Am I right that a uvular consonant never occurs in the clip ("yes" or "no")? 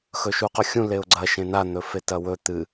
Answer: no